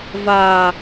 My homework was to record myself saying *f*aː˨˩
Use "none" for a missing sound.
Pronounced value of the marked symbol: v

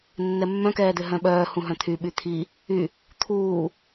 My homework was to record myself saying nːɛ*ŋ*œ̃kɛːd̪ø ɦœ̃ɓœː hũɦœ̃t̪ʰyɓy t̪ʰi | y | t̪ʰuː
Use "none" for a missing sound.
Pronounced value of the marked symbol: mː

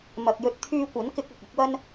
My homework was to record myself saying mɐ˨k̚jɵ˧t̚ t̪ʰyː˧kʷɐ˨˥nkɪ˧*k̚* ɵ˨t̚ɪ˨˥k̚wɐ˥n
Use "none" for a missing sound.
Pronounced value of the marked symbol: k̚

